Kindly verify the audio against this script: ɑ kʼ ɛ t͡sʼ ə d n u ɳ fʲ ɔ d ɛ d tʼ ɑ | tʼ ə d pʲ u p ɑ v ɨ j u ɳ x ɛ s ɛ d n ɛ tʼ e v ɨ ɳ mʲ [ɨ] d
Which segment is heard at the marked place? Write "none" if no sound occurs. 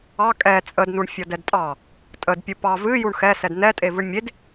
e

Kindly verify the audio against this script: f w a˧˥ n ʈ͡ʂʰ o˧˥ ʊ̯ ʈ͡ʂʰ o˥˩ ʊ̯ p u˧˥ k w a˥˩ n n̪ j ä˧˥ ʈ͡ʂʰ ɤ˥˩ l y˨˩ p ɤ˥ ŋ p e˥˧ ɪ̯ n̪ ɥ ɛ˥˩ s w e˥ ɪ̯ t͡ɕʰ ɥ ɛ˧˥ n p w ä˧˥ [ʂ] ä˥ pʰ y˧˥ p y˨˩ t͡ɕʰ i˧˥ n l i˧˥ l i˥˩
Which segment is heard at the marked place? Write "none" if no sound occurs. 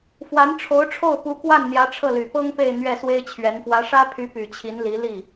ʂ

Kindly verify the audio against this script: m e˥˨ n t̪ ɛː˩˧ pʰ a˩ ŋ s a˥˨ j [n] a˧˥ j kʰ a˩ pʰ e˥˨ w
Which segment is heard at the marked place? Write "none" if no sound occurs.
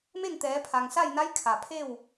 n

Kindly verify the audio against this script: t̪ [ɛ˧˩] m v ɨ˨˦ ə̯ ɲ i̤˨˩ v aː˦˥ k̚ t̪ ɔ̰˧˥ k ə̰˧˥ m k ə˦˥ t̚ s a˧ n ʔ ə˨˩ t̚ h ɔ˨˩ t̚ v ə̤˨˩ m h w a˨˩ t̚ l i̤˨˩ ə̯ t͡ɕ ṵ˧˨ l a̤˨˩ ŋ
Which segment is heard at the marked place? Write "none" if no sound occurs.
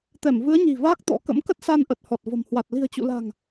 ɛ˧˩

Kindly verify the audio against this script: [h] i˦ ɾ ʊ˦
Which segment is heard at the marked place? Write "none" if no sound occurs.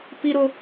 p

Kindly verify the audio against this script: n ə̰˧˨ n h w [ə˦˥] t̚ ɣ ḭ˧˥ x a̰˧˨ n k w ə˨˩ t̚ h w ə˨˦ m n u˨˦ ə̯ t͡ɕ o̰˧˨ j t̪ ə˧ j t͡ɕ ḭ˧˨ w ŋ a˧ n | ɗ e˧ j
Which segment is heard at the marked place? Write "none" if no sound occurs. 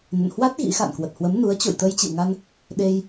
a˦˥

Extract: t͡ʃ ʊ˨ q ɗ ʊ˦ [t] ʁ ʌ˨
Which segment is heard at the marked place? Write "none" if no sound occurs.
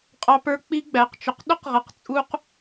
q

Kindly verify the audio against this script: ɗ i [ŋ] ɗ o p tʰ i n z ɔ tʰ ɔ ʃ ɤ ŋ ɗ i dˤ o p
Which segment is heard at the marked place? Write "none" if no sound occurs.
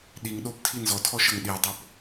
ŋ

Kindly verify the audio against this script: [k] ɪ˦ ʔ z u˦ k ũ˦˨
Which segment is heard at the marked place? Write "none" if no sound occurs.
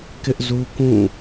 k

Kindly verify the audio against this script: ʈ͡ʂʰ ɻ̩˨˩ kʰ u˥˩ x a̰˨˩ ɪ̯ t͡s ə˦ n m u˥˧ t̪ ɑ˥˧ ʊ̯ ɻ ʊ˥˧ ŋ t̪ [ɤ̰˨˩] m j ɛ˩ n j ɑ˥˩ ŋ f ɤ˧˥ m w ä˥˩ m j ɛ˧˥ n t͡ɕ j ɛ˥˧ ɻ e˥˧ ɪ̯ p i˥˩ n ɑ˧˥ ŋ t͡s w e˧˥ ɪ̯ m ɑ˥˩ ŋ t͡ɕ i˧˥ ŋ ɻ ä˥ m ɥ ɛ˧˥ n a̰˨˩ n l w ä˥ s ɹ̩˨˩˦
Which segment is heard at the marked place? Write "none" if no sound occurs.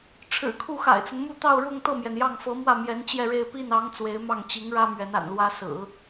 ɤ˥˩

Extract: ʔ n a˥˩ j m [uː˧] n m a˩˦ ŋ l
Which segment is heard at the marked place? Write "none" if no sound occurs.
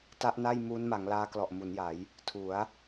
uː˦˥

